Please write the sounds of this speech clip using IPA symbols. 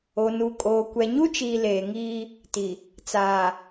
o˨ n u˨ kʼ oː˨ kʷ ɛ˨ ɲ u˦ t͡ʃ iː˨ l eː˨ ŋ iː˦ | t i˨ | t͡s aː˨

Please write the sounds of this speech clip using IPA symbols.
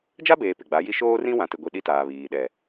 d͡ʒ a˦ b eː˨ p ɪ˨ ɡ͡b a˨˦ j i˦ ʃ oː˦ r ĩ˦ w ã˨ t ɪ˨ ɡʷ i˨ ɗ i˦ t aː˨ β iː˨ ɗ ɛ˨

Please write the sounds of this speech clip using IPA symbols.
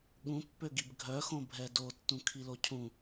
ɠ ũ pː ø ɡ i b ɡʱ œ x õ bʱ ɛ d o tː ũ kʰ i l o cʰ ũ

